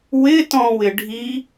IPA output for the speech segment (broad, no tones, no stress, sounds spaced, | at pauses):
w ɪ t ɔ̃ w ɪ ɖʱ i